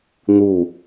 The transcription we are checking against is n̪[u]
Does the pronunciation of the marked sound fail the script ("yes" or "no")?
no